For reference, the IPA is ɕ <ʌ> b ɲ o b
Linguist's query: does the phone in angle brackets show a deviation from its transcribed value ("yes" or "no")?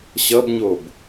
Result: no